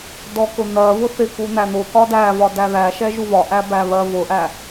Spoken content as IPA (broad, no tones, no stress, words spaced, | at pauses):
dɔkʊn̪ɜvʊ θɪku n̪æn̪ʊkɒ dævɒ dæðæʃɛ ʒuvɒʔæ bæβɜvʊʔæ